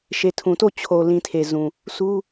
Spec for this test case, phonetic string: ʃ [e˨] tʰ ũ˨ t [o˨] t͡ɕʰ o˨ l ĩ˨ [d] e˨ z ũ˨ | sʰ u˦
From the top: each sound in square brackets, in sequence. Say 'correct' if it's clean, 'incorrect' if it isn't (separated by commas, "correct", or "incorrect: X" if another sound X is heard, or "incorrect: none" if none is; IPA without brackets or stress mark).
correct, incorrect: o˦˨, incorrect: tʰ